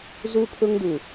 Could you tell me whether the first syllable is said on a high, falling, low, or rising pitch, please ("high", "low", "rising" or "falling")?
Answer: high